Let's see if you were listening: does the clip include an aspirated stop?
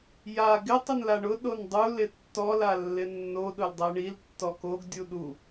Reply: no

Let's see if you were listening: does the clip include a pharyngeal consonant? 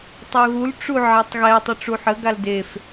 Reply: yes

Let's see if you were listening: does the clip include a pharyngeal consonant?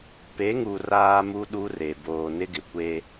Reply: no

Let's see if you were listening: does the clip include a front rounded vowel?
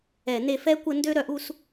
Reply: yes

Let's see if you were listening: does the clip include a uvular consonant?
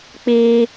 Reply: no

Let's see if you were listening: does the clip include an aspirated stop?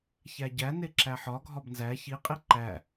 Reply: no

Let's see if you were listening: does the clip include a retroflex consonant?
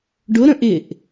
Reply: yes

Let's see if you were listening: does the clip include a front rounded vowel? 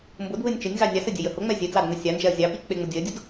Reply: no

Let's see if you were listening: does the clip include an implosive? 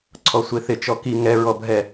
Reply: no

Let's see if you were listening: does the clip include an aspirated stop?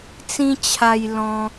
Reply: yes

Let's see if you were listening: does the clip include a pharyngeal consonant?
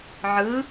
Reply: yes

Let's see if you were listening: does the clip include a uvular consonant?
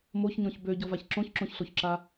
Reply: no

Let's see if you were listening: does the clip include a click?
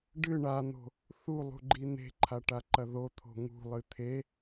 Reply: yes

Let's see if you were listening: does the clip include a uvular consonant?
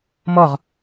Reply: yes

